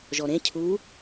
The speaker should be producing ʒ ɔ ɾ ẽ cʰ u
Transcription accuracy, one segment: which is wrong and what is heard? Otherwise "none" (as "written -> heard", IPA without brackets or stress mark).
none